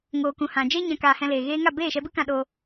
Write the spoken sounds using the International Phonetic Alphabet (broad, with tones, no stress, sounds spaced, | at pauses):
ŋ oː˨ k ũ˨ h ã˨ d͡ʒ e˦ ɲ ã˨ k aː˨ h ɛ̃˧ l eː˨ ɣ eː˦ ŋ a˦˨ b eː˦˨ ʃ ɛ˧ b ɨ˦ k ã˧ ɗ o˧